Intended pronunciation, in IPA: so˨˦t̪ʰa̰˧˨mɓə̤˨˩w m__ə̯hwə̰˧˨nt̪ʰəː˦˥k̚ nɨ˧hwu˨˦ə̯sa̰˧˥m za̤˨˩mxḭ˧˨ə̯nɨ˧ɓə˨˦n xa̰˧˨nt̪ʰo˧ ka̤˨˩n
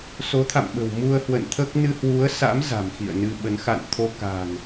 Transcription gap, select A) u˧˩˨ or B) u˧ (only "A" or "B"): B